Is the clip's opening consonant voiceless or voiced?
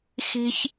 voiceless